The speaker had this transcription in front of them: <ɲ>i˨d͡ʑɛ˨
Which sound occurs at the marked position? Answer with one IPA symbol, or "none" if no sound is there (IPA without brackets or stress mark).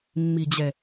mː